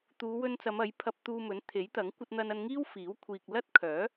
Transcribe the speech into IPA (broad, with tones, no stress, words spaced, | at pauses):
t̪uː˨˧wɵ˧nt͡sɐ˨˧m ɐ˨˥jpʰɐ˧p̚t̪uː˧mɵ˨˥n t̪ʰe˨˥jt̪ɐ˨˥ŋ kʷɐ˧t̚n̪ɐ˧nɐ˧n ŋiː˥wfiː˨˥wkʷʰiː˨k̚ lɐ˥t̚kʰœː˨˥